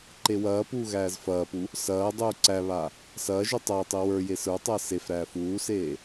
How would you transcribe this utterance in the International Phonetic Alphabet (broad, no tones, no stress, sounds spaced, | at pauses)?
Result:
ǃ e w ɐː p uː ɣ æː z f ɐː p u | s ɐː dˤ uː ǀ æ β a | s ɐː ʒ u tˤ ɐː tˤ i w ə˞ j e s ə˞ tˤ ɐː s e f ɾ æː f uː s eː